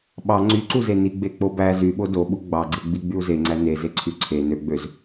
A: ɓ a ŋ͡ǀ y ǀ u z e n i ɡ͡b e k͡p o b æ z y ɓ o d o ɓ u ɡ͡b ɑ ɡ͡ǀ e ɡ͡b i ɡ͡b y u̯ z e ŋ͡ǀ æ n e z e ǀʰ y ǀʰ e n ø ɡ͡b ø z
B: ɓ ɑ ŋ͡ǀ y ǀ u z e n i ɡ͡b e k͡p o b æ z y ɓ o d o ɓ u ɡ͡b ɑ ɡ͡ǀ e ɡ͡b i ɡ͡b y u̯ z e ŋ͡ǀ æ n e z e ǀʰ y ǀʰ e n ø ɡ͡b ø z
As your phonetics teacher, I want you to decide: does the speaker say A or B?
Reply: B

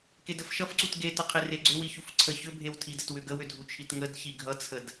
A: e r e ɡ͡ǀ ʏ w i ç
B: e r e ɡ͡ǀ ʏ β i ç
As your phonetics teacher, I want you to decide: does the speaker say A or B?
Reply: A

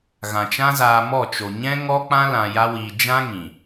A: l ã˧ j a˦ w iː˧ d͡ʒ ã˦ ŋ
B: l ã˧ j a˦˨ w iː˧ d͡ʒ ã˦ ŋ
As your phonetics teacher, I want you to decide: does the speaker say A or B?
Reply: A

